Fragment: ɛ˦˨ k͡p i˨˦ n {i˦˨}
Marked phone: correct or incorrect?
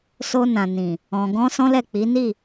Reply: correct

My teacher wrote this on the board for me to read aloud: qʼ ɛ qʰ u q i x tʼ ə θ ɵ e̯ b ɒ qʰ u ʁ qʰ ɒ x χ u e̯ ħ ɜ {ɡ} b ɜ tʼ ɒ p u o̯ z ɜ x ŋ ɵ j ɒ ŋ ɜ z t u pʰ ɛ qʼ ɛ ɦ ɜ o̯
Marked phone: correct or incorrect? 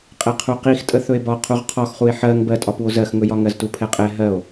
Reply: incorrect: ŋ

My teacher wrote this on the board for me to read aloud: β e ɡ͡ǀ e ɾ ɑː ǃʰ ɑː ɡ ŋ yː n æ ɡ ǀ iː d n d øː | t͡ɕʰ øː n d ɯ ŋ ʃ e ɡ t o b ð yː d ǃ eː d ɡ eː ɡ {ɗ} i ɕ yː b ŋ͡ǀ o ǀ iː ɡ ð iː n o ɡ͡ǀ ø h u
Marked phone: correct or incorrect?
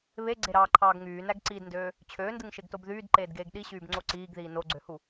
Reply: correct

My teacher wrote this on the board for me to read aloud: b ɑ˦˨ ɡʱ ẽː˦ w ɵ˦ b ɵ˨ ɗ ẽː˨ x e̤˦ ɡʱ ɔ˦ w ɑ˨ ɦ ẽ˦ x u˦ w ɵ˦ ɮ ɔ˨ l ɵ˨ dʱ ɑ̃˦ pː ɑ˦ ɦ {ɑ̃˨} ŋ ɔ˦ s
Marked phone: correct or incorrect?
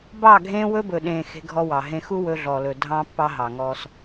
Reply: incorrect: ɑ˨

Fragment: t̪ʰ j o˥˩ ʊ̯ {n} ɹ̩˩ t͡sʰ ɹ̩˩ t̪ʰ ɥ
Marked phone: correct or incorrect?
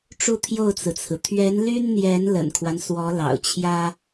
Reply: incorrect: t͡s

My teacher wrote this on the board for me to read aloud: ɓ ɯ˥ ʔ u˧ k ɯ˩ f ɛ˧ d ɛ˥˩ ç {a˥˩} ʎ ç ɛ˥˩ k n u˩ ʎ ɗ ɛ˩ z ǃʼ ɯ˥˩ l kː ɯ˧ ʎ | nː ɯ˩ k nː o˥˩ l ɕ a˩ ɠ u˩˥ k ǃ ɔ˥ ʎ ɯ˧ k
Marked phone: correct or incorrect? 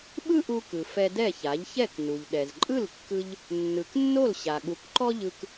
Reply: incorrect: a˩˥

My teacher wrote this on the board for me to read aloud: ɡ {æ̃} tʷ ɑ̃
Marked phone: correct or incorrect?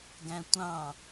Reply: correct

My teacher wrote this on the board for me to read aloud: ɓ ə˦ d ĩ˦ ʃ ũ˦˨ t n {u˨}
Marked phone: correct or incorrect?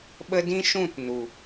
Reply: correct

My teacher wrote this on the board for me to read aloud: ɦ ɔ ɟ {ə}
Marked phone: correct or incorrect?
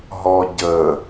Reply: correct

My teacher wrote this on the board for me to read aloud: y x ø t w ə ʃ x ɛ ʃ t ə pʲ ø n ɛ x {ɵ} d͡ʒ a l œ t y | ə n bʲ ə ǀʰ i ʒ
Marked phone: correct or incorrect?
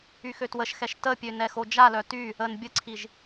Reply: incorrect: o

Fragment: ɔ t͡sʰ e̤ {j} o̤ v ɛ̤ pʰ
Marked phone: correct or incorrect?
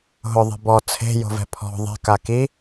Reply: correct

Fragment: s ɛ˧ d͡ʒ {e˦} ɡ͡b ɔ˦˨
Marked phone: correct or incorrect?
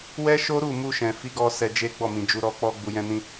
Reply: correct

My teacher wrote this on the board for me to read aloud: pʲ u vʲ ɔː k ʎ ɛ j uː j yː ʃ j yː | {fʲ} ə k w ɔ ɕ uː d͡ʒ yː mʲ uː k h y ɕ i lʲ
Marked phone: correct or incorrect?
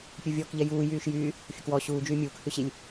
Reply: correct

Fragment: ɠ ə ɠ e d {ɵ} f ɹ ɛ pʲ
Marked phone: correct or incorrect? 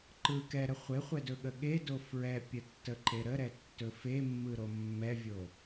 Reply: incorrect: o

